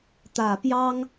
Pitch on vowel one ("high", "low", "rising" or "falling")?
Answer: low